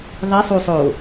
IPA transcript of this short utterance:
ðˤ i sˤ u sˤ oː

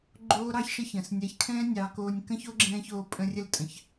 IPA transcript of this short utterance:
ɡ͡ǃ oː˦ ɾ ɑ˦ ç ʃ ə˦ ç ə̃ː˨ s nʲ ɛ˨˦ ç kʰ ɛ̃ː˦ nʲ ɑ˧ k oː˧ nʲ k ə̃˦ ç o˦ ɡ͡ǁ ɛ̃ː˧ ç oː˧ pʼ ə̃˧ rʲ ə˧ l tʼ ə̃˨ ç

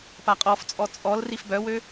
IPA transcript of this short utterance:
p a qʼ ɔ f t͡sʼ ɔ t͡sʼ ɔ l r i f b œ w ø

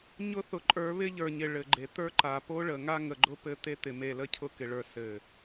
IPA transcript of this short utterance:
ɲ ʊ˦ θ ʊ˨ ǃʼ ə˞˨˦ β ɪ˦ ʎ ə˞˨ ɲ ɪ˨ ɭ ɘ˨ ɡ͡ǃ e˨ t̪ ə˞˦ ǃ a˨ p o˦ ɭ ə˨ ŋ a˦ ŋ ə˨ ɡ͡ǃ ʊ˦ p ɘ˦ t̪ e˦ t̪ ɪ˨ m e˨ l ə˦ cʰ ʊ˦ k ɪ˨ ɭ ə˞˨ s ɘ˨

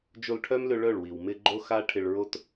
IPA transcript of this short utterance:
d͡ʒ o˧ l ʈʰ œ˦ m l ʏ˧ ɭ œ˦˨ ɭ w i˨ w m ɪ˧ ɡ͡ǃ o˦ x a˦ ʈʰ ɪ˧ ɭ ɹ o˦ t

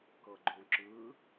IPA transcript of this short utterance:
k ɤ ɡ͡ǃ õ ǁ ɯ

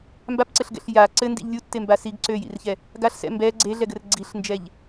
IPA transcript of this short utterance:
m b a p ǀ ɘ ɬ ɡ ɛ̰ ɬ j a ǀ ɘ n d ḭ ʎ lʲ u tː e m b a s i ɡ ǀ ø j ḭ r ç ɛ | ɡ a ɬ s ɛ̰ m b ɛ ɡ͡ǀ e ɮ ɛ ɡ ɘ r ɡ͡ǀ i ɬ n d͡ʒ ɛ ʎ

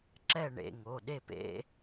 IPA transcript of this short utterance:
ǁ ɛ˥˨ ɳ ḛ˩˧˩ ŋ o˩˧˩ ɗ e˥˨ p ḛ˦˥

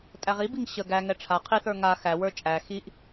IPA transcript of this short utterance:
tʼ æ ʁ i b i ŋ ɕ ə ɡ æ ŋ ɛ ʈ͡ʂʰ a qʰ i θ ə˞ ŋ a x æ w ə˞ t͡ʃʼ æ x i ʔ

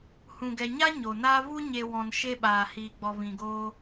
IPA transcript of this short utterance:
h ũ˨ ɡ ɛ˨ ɲ a˦ ɲ o˨ n aː˦ v u˧ ɲ e˨ w ɔ̃˨ n ʃ e˧ ɓ aː˨ h iː˨ ɡ͡b ɔ˨ v ĩ˨ ɡ oː˧

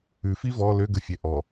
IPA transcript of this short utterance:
ʉ f i v ɔ l ø ɡ ə fʲ ɛ ʔ ɔ

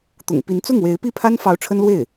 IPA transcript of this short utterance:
t̪ ʊ̰˨˩ ŋ p i˧˥ n t͡s ʊ˥˩ ŋ w e˧˥ ɪ̯ p i˥˩ pʰ a˥ n f ɑ˧˥ ʊ̯ ʈ͡ʂʰ ə˥ n l w e˥˩ ɪ̯

